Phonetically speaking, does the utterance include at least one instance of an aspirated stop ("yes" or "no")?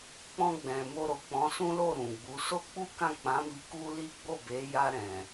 no